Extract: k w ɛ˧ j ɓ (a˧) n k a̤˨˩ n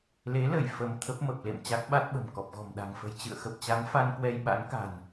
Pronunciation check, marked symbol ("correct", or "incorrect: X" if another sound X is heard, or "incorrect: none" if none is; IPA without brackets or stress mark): incorrect: a̰˧˥